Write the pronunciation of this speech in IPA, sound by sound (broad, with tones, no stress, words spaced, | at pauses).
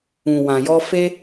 ũ˨wã˨jɔ˧ fe˧